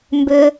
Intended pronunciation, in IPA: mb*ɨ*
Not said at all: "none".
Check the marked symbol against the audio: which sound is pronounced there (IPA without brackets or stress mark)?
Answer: ʏ